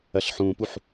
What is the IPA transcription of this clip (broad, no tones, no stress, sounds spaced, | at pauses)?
ɐ ɬ ħ ũː p u ħ